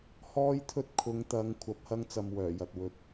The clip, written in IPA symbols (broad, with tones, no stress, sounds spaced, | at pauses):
h ɔː˥ j t̪ʰ ɵ˥ t̚ kʰ ʊ˨˧ ŋ t̪ ɐ˨˧ ŋ kʷʰ ɐ˨˥ p̚ h ɐ˥ ŋ t͡s ɐ˨ m w œː˨˩ j ɐ˨ t̚ w ɵ˨ t̚